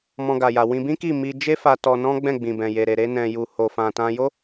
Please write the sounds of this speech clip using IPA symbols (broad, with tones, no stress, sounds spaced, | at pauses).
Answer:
m ɔ̃˧ ɡ a˨ j a˨ w ĩ˧ b ĩ˦ k i˦˨ m i˧ d͡ʒ e˦ f a˧ t ɔ˧ n ɔ̃˦ ɡ͡b ɛ̃˦˨ ɡ͡b ĩ˨ b ɛ̃˨ j e˨ ɾ e˨ ɾ e˧ n ɛ̃˨ j u˨ h o˨ f ã˨ t ã˧ j o˦